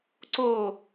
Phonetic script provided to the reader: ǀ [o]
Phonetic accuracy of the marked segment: correct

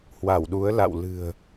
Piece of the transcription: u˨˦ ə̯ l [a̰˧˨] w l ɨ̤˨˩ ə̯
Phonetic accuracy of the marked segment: correct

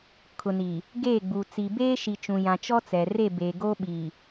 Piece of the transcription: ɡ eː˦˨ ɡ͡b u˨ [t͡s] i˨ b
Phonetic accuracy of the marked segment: correct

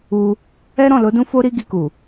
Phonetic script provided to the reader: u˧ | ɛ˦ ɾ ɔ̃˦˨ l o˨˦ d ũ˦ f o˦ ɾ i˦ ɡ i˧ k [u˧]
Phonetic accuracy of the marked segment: incorrect: u˨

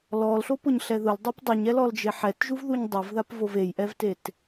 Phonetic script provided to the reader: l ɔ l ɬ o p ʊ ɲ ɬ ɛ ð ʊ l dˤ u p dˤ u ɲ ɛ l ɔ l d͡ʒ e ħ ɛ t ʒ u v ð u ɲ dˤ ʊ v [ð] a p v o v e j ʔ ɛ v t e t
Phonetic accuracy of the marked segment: correct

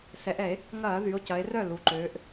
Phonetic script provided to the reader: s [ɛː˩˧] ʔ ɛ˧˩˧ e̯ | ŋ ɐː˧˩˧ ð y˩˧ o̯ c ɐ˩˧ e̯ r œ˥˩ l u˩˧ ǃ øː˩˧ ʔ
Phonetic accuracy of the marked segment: incorrect: ɛ˩˧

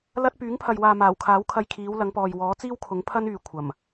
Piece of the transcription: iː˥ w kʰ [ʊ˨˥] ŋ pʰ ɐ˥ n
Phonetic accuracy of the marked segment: correct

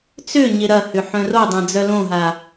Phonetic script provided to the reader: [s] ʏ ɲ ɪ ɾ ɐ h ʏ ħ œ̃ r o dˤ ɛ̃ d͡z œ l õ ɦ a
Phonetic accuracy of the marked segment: incorrect: t͡s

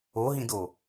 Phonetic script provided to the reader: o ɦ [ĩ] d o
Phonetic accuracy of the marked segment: correct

